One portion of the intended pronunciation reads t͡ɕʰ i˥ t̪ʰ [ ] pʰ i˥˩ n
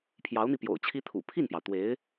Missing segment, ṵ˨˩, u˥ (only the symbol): ṵ˨˩